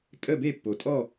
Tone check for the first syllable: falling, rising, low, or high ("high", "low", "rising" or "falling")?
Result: falling